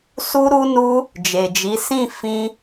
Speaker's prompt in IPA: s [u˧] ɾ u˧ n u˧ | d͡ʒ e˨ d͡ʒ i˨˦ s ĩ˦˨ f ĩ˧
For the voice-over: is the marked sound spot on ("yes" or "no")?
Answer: yes